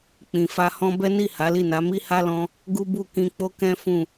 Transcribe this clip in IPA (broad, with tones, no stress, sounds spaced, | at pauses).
k͡p ĩ˨ f a˧ h ɔ̃˦ b ɛ˦ n i˦˨ h a˨˦ l i˦˨ n a˨˦ m i˦ h a˦ l ɔ̃˧ | ɡ u˦ b u˦˨ k ĩ˧ k͡p o˦ k ɛ̃˦ f ũ˦˨